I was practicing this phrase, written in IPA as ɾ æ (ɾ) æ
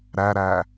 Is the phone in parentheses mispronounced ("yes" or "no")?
no